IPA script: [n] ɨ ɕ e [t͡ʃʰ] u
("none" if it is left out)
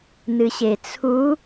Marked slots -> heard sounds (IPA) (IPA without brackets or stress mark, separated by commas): n, t͡sʰ